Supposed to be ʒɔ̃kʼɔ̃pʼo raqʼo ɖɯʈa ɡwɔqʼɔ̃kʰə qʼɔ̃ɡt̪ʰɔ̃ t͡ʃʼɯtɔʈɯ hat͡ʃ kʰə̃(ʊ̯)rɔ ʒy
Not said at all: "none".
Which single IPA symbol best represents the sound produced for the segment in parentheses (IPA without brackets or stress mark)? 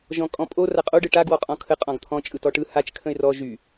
ɪ̯